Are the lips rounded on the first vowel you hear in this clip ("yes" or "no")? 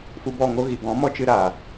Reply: yes